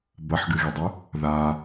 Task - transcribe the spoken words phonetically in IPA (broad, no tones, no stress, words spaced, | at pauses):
bɐħɡɨɣidˤɵ | ða